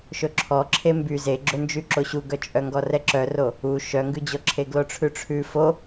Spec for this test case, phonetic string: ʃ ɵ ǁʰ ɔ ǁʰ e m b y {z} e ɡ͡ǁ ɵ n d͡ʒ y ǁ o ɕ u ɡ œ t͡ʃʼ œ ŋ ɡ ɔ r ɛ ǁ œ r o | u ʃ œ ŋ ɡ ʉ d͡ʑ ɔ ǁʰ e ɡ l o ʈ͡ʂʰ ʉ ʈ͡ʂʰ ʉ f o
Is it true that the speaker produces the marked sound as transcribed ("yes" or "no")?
yes